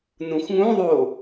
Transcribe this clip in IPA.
nũxʷŋũðˤo

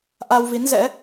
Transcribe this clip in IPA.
ʔa˧wvi˨˦nzɛ̰˧˥

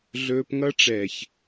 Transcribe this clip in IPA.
ɮɵː˦p ŋʌ˦ʈ͡ʂɛ˨ç

